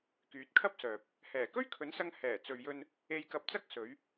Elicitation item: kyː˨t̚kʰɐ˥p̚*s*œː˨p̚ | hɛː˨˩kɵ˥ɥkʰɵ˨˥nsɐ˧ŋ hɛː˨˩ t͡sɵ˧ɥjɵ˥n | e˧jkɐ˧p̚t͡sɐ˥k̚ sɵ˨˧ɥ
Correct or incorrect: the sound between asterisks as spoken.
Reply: correct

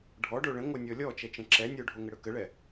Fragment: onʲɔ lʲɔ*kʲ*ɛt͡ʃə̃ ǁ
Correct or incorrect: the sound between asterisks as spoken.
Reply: incorrect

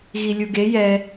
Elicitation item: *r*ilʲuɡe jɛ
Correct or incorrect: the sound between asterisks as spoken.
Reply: incorrect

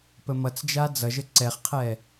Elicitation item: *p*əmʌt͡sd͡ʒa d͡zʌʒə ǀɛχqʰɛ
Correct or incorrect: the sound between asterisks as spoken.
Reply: correct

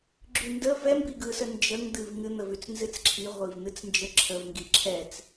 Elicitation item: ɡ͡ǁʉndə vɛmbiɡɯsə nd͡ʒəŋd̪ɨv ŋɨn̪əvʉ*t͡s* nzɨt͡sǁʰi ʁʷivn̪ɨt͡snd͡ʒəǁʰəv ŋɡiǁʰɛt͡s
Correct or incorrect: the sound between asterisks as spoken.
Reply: correct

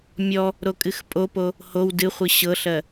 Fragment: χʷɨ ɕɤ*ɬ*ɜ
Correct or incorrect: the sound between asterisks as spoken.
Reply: correct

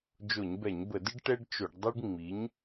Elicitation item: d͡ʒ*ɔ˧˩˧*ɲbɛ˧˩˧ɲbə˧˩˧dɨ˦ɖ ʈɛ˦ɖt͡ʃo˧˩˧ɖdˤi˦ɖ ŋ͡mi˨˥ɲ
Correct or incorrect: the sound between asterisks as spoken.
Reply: incorrect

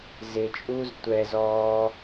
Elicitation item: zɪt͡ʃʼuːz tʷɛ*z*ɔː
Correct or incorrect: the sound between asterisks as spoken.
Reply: correct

